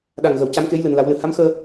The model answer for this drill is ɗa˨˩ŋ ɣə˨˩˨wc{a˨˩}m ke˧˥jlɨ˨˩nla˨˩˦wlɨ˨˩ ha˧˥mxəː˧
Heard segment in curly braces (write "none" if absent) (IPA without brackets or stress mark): a˧˥